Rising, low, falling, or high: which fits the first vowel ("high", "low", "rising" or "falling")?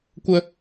high